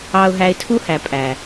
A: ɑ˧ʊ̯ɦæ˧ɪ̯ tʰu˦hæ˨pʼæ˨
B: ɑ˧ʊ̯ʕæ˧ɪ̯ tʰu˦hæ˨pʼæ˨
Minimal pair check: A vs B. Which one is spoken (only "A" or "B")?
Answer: A